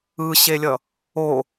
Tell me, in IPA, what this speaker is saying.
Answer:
ɯ ɕ e lʲ ʌ | o

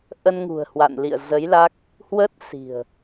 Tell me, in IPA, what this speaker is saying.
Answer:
ʔ ə˧ n ŋ ṳ˨˩ ə̯ h w a̰˧˨ n l ḭ˧˨ ə̯ z ə˨˦ j l a˦˥ k̚ | h w ə˦˥ t̚ s i̤˨˩ ə̯

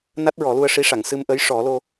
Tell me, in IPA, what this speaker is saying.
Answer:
n a˦˥ t̚ ɹ ɔ˨˩˦ l u˧ ə̯ ʂ i˧˥ ʂ a˨˩˨ ŋ s ɨ˧ m ʔ ə˧˥ j ʂ ɔ˨˩˦ l o˧

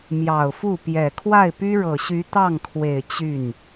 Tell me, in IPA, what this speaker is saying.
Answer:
m j ɑ˨˩ ʊ̯ f u˥˩ p j ɛ˨˩ kʰ w a˥˩ ɪ̯ p y˥ ɻ ɤ˨˩ ɕ y˧˥ t̪ ɑ˥˩ ŋ kʰ w e˨˩ ɪ̯ t͡ɕ y˥˩ n

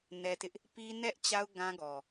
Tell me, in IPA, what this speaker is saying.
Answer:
n ɛ˦ t ɪ˦ ʔ | p i˦ n ɛ˦ ʔ t͡ɕ a˦ ʊ̯ ɡ ã˦ ɡ ɔ˨

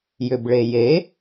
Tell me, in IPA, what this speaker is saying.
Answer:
j ʏ b ɭ e j e

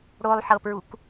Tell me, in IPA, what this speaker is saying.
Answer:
ɽ o lˠ ħ ɤ p ɹ u k

